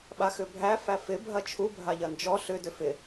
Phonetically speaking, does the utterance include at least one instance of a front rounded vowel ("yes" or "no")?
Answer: yes